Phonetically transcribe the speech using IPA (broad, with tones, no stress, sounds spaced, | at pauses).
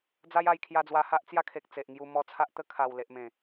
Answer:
d͡z a˦ j a˧ j kʰ j a˧ d͡z w a˧ h a˦ ʔ t͡s j a˦ kʰ e˨ k̚ t͡s e˨ ʔ ŋ j u˧ m ɔ˧ t͡sʰ a˦ ʔ t̪ ə˦ kʰ a˨˩ w l e˨ ʔ m ẽ˨˩